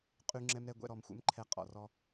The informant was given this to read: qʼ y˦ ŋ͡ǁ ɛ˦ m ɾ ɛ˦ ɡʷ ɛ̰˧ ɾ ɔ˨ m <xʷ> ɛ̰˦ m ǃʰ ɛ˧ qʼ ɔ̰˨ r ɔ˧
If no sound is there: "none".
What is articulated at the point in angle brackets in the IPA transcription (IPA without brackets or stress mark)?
xʷ